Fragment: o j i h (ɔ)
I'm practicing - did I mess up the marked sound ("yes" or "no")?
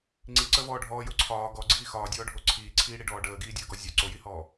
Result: yes